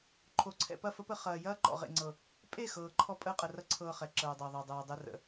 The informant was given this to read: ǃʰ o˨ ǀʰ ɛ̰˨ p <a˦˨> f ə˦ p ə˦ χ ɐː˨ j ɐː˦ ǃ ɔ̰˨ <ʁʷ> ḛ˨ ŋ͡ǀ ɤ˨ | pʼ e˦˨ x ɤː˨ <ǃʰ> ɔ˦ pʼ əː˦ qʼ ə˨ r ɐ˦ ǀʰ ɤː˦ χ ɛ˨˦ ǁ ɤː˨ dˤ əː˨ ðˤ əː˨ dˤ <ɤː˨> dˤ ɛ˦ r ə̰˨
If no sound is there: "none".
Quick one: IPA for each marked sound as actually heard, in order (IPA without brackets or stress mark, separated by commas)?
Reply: ɐ˦˨, ʁ, ǃʰ, ɤː˨